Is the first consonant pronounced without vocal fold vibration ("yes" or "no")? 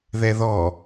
no